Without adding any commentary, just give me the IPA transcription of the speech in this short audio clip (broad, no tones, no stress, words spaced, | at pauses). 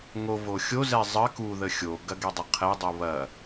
ŋo voxʲozɛ zˤə kuðə xʲoɡɐ ɡɛdˤɵqʰɛdˤu βɐ